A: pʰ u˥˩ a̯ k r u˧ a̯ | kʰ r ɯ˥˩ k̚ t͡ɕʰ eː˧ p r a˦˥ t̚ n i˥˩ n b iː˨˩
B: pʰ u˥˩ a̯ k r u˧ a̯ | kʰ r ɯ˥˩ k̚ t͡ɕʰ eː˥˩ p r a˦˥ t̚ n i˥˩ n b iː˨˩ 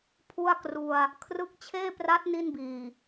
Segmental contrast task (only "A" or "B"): B